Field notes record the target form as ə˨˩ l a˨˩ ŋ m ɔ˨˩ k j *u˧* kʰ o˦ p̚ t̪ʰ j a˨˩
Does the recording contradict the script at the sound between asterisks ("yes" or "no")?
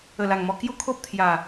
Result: yes